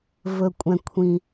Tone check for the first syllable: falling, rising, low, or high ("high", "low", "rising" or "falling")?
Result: low